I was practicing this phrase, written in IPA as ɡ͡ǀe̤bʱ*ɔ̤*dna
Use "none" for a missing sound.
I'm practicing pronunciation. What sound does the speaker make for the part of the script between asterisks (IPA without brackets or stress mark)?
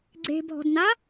ɔ̤